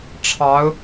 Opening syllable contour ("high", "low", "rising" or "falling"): rising